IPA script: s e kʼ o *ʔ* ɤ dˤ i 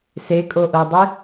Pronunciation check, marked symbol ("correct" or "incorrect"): correct